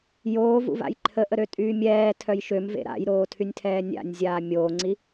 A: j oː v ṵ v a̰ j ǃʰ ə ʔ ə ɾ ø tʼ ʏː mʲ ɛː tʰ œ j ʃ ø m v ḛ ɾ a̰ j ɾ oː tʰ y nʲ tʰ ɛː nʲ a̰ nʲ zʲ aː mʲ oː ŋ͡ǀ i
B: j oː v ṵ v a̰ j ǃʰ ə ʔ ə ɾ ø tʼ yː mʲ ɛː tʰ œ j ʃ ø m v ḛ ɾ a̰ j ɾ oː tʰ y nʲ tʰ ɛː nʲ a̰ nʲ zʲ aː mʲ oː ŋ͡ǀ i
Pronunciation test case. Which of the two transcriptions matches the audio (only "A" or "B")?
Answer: B